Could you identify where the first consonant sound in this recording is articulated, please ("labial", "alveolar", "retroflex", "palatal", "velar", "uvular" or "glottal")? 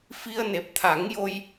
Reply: labial